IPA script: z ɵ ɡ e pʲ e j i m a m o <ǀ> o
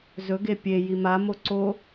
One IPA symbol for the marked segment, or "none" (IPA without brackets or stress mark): ǀ